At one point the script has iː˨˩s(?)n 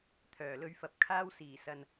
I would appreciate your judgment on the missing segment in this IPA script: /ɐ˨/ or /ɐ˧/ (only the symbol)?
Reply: ɐ˨